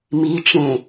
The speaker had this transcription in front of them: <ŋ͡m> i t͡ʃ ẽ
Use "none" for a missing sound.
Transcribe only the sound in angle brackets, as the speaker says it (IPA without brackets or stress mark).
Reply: m